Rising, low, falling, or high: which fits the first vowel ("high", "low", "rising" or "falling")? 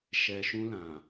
low